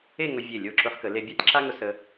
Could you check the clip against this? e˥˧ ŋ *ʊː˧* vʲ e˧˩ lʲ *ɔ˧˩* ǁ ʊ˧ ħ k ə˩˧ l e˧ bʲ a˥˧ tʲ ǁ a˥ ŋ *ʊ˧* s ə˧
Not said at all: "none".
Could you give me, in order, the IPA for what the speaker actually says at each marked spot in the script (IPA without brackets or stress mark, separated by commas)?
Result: ʊ˧, o˧˩, ʊ˧